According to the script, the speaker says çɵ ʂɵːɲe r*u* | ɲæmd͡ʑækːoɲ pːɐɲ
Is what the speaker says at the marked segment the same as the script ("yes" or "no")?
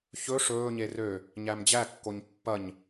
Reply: no